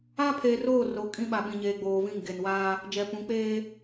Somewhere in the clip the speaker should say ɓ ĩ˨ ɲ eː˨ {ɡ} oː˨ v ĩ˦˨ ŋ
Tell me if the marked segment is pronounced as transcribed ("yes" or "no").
no